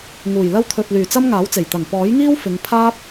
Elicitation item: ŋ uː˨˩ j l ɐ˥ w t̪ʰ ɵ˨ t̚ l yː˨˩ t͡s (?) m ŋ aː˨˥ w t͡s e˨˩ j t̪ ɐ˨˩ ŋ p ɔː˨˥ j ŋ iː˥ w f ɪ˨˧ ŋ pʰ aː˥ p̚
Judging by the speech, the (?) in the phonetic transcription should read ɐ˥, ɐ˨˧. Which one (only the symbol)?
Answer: ɐ˥